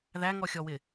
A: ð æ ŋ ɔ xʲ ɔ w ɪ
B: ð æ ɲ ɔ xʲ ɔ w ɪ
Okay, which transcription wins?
A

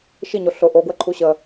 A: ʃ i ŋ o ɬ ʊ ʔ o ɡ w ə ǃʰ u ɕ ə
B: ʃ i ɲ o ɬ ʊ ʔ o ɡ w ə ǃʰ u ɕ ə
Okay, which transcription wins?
B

